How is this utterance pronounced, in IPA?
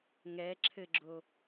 ŋ ɛ ǁʰ ɘ ɡ͡ǁ o

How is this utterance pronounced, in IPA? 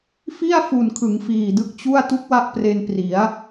f i˥˩ a̯ f u˨˩ n kʰ ɯ˩˦ ŋ f iː˨˩ d ɯ˦˥ k̚ t͡ɕ u˥˩ a̯ t u˦˥ k̚ w a˦˥ ʔ p r e˧ n p r i˩˦ a̯

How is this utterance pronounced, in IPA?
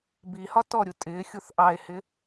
b i h ɒ t ɔ ɾʲ u tʼ ɪ xʲ u θ ʔ ɑ e̯ h ɪ

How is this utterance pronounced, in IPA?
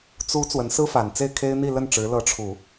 t͡s u˧˥ t͡s w ə˧˥ n s ɹ̩˥ f a˨˩ n t͡s e˥˩ ɪ̯ kʰ e˥ ɪ̯ n̪ i˥˧ l ə˥˩ n ʈ͡ʂ ɻ̩˧˥ l ɤ˧˥ ʈ͡ʂʰ u˨˩˦

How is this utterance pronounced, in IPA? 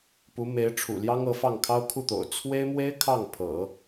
p u˧˥ m e˧˥ ɪ̯ ʈ͡ʂʰ ṵ˨˩ l j ɑ˥ ŋ ɤ˧˥ f ɑ˥˩ ŋ kʰ ɑ˥ ʊ̯ kʰ u˥˩ t̪ o̰˨˩ ʊ̯ t͡sʰ w e˥ ɪ̯ m w e˥ ɪ̯ kʰ ɑ˥˩ ŋ pʰ ɤ̰˨˩˦

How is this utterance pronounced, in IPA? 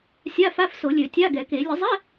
sʲ a˧˥˧ f a˧˥˧ f s o˨˩˦ lʲ ø˨˩˦ tʲ a˧˥˧ ɡ ɛ˨˩˦ k e˨˩˦ lʲ ə˨˩˦ zˤ ɛ˧˥˧

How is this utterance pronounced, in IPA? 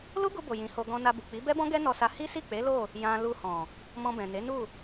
l u˦ ɡ u˧ b o˨ j ĩ˨˦ h o˧ ɡ ɔ̃˧ n a˧ b u˨ k͡p i˨˦ b ɛ˦ b ɔ̃˦ ɡ ɛ˦ n ɔ˧ s a˧ h i˦ s i˦˨ k͡p e˨˦ l o˦˨ | j ã˧ l u˧ h ɔ̃˨ | m ɔ̃˧ b ɛ̃˨ n e˨˦ n u˦˨

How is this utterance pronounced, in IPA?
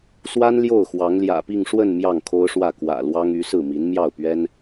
s w a˥ n l j o˥˩ ʊ̯ x w ɑ˧˥ ŋ l j ä̰˨˩ p i˥˧ ŋ ʂ w ə˥˧ n m j ɑ˥˩ ŋ kʰ o˥ ʊ̯ ʂ w ä˥˩ k w ä̰˨˩ l w ɑ˥ ŋ y˧˥ s ɹ̩˥˩ m i˧˥ n m j ɑ˥˩ ʊ̯ p ɥ ɛ˥ n

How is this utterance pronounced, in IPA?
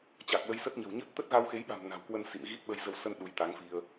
t͡ɕ a˨˩ k̚ l ə˧ j s ə˦˥ t̚ ɲ ə̤˨˩ w ɲ ə˦˥ t̚ t̪ ə˦˥ t̚ ɣ a˧ w x e˨˦ j ɓ a̤˨˩ m n a̤˨˩ w k w ə˧ n s ḭ˧˨ m ɣ i˦˥ t̚ ɓ ə˧ j z ə˧ w s ə˧ n ɗ u˨˦ j t̪ a˨˦ ŋ f i˧ ə̯

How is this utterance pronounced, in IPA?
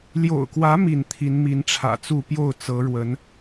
l j o̰˨˩ ʊ̯ k w ä˨˦ m i˥˨ n t̪ʰ i˨˦ n m i˨˦ n ʈ͡ʂʰ ä̰˨˩ t͡s u˥˨ p j o˥˨ ʊ̯ t͡s ɤ˨˦ ɻ w ə˨˦ n

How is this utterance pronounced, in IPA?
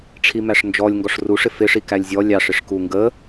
ʈ͡ʂʰ i m æ ʂ n d͡ʒ ɔ lʲ ŋ ɡ ɔ ʂ r u ʂ ɪ f ɪ ʂ i k æ lʲ zʲ ɔ lʲ ɑ ʂ ɪ ʂ k u ŋ ɡ ə

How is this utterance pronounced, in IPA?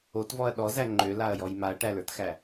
o t v ɔ ɐ̯ ɗ ɔ z æ ŋ͡ǃ ø l a ɐ̯ j ɔ j m a ɐ̯ ʈ æ l ə˞ t x æ

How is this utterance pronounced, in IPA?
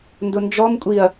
n d ʊ n d͡ʒ ɔ m kʷʼ i ɐ̯

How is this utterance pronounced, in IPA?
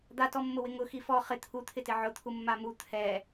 d̪ a t ɔ mː ʊ w ɪ ŋ ʊ x i f ɔ χ ɪ t̪ʰ u t̪ʰ ɪ t ɪ ʕ ʊ t̪ʰ u mː a m u t̪ʰ ɛ

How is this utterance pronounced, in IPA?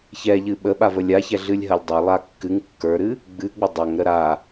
ç ɛ ʎ ɨ ɓ ə ɓ a v ə lʲ a ç ɛ ɮ ɨ lʲ ɦ ɐ lʲ dˤ a lˠ a kː ɨ ŋ kː ə˞ ɾ ɨ | ɡ͡b ɨ ɡ͡b ə dˤ a ŋ ɾ ə ɾ a

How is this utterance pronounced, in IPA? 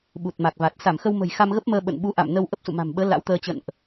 ɓ u˨˩ t̚ m a˨˩ k̚ v a˨˩ t̚ s a˧˩ m x ə˧ w m ə̤˨˩ j x a˧ m ɣ ə˦˥ p̚ m əː˧ ɓ ə̰˧˨ n ɓ u˨˦ ʔ a̰˧˨ m n ə˧ w ʔ ə˦˥ p̚ s ṵ˧˨ m a̤˨˩ m ɓ əː˨˦ l a̰˧˥ w t̪ əː˧ t͡ɕ ə̰˧˨ n ʔ

